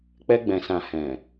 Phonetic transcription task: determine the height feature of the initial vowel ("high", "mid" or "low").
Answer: mid